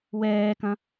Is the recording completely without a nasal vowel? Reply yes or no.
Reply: no